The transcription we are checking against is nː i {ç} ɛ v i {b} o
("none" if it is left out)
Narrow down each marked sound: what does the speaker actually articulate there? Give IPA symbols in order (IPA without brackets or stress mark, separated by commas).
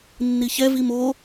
ç, m